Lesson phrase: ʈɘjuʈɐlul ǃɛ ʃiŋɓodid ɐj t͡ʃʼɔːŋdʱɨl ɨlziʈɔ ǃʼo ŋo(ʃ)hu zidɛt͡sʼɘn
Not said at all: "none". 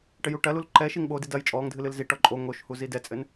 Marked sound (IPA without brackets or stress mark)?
ʃ